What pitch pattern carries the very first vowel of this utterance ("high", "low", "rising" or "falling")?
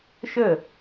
falling